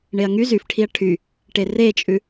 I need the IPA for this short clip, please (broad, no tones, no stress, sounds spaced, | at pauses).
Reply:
ɳ e ɐ̯ ŋ y z y f ʈʰ i ɐ̯ ʈʰ y | ʈ e r e t͡ʃʼ ʉ